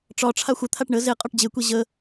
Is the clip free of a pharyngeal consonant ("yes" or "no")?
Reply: yes